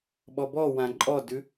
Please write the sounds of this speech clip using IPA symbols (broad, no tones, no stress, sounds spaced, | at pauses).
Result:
ɓ ɔ b ɔ w ã ǃʼ ɔ d ʉ